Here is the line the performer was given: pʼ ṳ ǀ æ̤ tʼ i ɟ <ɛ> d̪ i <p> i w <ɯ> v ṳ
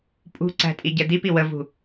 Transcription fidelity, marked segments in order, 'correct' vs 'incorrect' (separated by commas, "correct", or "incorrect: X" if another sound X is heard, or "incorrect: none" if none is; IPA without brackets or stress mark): correct, correct, incorrect: ə